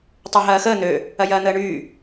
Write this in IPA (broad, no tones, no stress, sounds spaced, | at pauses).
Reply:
tˤ ø ɦ ɐː x əː n̪ ø | ɐ j ɐː n̪ əː ɳ yː